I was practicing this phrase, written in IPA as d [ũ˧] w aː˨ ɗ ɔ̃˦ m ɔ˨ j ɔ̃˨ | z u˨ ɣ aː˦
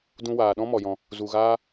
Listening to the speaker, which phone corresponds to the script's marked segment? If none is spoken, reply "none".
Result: ũ˧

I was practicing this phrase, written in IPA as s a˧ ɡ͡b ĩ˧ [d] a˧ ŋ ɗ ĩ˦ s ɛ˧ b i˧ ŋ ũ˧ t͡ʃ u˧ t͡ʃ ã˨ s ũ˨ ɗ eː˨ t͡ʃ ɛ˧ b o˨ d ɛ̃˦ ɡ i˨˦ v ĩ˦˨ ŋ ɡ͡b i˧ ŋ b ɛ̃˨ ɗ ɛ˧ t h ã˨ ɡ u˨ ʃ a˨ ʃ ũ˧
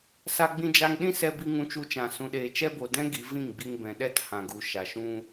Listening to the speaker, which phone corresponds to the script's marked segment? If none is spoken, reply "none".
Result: d͡ʒ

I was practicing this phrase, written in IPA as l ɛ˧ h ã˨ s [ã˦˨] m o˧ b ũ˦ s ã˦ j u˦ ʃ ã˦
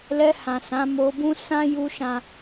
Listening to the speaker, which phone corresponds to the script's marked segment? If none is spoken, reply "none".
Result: ã˨˦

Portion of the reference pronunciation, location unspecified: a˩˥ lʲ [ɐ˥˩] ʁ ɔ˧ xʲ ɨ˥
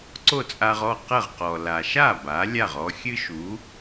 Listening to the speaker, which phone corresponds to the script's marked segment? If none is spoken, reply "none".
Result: a˥˩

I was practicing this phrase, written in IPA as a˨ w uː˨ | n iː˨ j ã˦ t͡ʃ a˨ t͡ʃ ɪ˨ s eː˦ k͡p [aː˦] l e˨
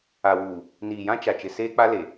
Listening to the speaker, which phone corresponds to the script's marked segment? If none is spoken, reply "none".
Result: a˦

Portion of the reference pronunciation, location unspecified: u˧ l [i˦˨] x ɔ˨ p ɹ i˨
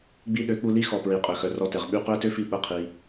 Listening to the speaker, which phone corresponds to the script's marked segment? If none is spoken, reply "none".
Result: i˦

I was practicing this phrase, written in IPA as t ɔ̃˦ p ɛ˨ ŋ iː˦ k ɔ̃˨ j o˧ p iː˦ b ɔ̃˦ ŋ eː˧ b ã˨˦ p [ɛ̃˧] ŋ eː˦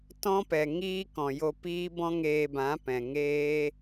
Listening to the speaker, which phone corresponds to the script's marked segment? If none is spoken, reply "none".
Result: ɛ̃˨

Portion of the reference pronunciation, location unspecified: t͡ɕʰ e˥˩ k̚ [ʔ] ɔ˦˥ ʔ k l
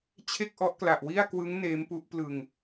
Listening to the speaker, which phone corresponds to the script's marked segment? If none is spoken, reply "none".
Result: ʔ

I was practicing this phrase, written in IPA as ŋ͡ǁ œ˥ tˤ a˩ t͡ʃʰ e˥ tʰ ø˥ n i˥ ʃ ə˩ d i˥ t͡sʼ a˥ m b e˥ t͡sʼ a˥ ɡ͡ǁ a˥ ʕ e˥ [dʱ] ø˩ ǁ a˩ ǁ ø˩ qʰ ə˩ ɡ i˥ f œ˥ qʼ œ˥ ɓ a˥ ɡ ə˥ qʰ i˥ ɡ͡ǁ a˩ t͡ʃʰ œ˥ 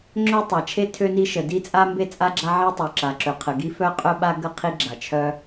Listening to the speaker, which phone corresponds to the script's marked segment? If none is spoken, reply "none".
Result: tˤ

